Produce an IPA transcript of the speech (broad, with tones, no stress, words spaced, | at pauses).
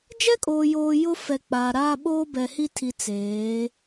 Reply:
d͡ʒɛ˦kʼoː˨joː˨ jʊ˦fɛ˨ k͡paː˨ɾaː˦ ɓoː˦bɛ˨hi˦tʰi˨ t͡seː˨˦